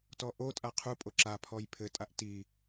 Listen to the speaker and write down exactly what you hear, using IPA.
t ɔ ʔ o tʼ a qʰ u pʼ o ǁ a pʰ ɔ j pʰ ɘ tʼ a ʔ t i

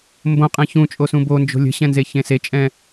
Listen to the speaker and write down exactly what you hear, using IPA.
m b õ qʼ ɛ̃ ç ũ t͡ʃʼ o s ũ b o n d͡ʒ o̤ lʲ ə̤ ɕ ɛ̃ n z e ç ẽ s e t͡ʃʼ ɛ̃

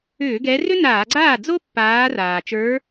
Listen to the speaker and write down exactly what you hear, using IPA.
ʏː˧˩˧ ɡ ɛ˨˦ r ʏ˥ n aː˧˩˧ ɡ͡ǀ aː˥˩ d͡z o˥ pː aː˨˦ r aː˩ t͡ʃ ə˞˨˦

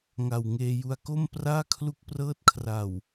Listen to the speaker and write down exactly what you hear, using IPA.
ŋ a˨˩ w ŋ eː˧ j u˧ a̯ k o˥˩ m p r aː˥˩ kʰ l u˦˥ k̚ p r ɤː˦˥ t̚ kʰ r a˨˩ w

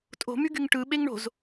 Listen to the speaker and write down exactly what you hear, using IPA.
tʼ o̤ m y ɡ y ŋ ʈ ɯ ɓ e ŋ ɳ o̤ z

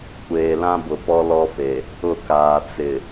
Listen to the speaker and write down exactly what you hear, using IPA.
kʷ eː˨ l ã˦ b ʊ˨ p ɔ˦ l ɔ˦ f e˨ | ʊ˦˨ k aː˨ t͡s ɪ˨

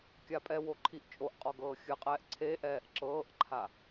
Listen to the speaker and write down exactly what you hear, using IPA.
kʲ a pʼ ɛ w o ǃʰ i ʔ t͡ʃʼ o ʔ qʼ ɔ ɡ ɤː xʲ ɯ qʼ ɛː ʔ ǀʰ e ʔ ɛː ʔ ǁ ɤː ʔ ǃʰ a

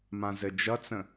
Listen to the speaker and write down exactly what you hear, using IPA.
m ã z ɘ d͡ʒ ʌ t͡s ə̃

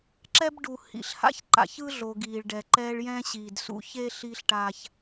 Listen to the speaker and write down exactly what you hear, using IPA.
ǁ ɛ˦ b ɖ u˨ h ḭ˨ ɬ h a̰˦ ç ǃ a̰˨ ç ɯ˦ ɮ o˨ ɡ iː˨ ɭ ɖ ɛ˨ ǃ ɛː˦ ɭ j ɛ̃˦ ɕ iː˨ d s ṵ˦ ç e˦ ɬ iː˦ ɬ ʈ a˦ ç

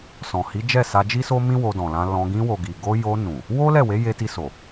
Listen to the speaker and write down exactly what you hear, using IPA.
s ɔ̃˨ h i˨˦ d͡ʒ ɛ˦˨ s a˧ d͡ʒ i˦ s o˦ m ĩ˦ w o˧ d ɔ̃˨ l ã˧ l ɔ̃˧ ɡ ĩ˧ w o˨ ɡ i˨ ɡ o˧ j o˧ n ũ˨ | w o˦ l ɛ˦˨ w e˨˦ j e˧ t i˧ s o˨

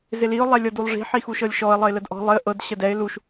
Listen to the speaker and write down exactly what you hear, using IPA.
z ɪ l i ʊ̯ lˠ ɛ lʲ ɤ d u lˠ ʐ i̤ ħ i x u ʃ ɤ lʲ ʃ ɔ ə̯ lˠ ə ɪ̯ l ə d ʔ ɔ̤ lˠ ɪ ə̯ ʔ ɤ d ɕ ə d ɛ ɪ̯ l u ʃ

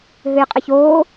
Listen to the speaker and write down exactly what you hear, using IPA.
ɦ ɨ j qʼ ə ç oː

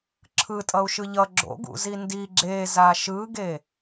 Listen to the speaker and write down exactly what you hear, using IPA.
ǁʰ ɯ tʼ ʌ u̯ ʃ ɯ ʎ ʌ ɡ͡ǁ o̰ ɡ ṵ z i n d i ɡ͡ǁ e z a ʃ ɯ ɡ e

